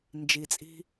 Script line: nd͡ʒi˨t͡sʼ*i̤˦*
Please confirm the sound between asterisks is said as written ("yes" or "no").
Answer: yes